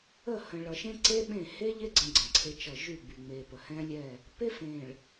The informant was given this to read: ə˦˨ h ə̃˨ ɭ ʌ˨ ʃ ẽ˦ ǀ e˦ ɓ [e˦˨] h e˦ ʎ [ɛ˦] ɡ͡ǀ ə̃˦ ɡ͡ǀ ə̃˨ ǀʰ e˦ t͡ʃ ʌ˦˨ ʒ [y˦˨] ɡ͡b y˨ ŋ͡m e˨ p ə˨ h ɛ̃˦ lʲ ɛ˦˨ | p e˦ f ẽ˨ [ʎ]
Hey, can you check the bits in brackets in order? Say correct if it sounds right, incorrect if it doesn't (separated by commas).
incorrect, incorrect, correct, incorrect